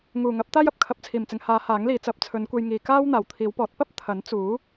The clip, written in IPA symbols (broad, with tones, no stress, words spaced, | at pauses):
ŋuː˨˩ ŋɐ˨˥p̚t̪aː˥jɐ˨p̚ kʰɐ˨˥p̚t͡sʰiː˨˩mt͡sɪ˨ŋ haː˨˧ haː˨˥ŋliː˨˧ t͡sɐ˨˥p̚t͡sʰɵ˨˧nkʷe˧j ŋiː˨kaː˥w n̪aː˨˩wt̪ʰiː˨˧wpɔː˨˥t̚ pɐ˥p̚ t̪ʰɐ˨˥n t͡suː˨˥